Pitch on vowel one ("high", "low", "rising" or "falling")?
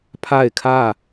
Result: falling